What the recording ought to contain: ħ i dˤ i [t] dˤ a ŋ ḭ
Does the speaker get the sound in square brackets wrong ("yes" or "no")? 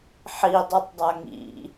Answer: yes